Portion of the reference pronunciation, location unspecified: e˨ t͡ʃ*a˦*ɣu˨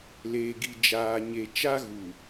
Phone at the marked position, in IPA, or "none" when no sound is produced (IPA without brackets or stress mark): a˦